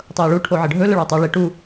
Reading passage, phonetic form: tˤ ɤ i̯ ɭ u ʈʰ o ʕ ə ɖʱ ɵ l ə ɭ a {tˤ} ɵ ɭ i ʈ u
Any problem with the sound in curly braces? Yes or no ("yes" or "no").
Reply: no